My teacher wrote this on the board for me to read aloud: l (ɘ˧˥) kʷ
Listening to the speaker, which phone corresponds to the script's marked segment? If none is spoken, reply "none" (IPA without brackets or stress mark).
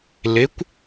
e˧˥